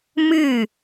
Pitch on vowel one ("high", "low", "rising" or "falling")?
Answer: falling